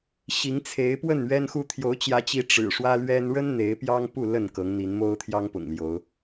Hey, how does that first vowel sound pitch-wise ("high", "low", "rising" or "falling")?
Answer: rising